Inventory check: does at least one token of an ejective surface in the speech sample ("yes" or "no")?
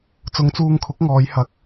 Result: no